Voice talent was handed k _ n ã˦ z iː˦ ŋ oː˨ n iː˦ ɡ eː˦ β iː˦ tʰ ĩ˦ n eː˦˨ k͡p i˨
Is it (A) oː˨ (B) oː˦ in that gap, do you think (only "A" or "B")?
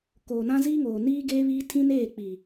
A